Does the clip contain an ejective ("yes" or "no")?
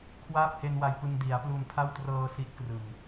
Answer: no